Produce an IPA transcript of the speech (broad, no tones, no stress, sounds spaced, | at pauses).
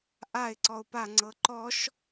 ʔ a ɪ̯ ǀ ɔ ʊ̯ p a ŋ͡ǀ ɤ ǃ ɔ ʃ